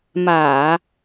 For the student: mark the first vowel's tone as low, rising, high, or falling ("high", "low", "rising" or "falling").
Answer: low